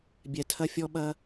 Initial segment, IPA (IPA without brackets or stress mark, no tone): bʲ